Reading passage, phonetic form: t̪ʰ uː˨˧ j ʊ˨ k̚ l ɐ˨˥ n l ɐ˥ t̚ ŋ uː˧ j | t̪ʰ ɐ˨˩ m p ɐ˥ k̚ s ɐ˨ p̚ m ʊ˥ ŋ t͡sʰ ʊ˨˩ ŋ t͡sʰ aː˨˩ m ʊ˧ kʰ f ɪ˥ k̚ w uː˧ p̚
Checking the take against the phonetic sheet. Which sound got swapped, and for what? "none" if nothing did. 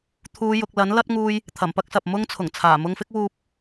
kʰ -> ŋ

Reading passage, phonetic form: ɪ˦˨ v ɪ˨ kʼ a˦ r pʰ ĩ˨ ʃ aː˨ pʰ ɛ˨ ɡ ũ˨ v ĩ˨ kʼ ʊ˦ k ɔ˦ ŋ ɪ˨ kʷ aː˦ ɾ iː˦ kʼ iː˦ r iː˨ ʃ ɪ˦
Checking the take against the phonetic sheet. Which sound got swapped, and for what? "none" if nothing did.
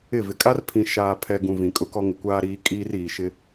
none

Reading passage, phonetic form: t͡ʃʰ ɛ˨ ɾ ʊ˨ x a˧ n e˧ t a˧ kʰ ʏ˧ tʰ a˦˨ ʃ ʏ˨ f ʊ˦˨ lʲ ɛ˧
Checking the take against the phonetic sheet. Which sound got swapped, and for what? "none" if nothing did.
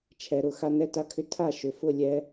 e˧ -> ɛ˧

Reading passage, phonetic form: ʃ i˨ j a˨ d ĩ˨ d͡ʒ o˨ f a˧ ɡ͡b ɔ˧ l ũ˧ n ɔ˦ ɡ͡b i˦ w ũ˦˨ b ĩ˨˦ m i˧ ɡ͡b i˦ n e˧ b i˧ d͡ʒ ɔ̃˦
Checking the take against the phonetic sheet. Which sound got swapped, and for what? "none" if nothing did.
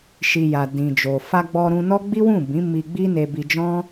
l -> ɾ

